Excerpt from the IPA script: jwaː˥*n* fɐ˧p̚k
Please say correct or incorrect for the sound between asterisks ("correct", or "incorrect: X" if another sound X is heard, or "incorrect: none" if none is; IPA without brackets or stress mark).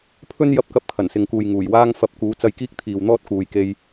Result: incorrect: ŋ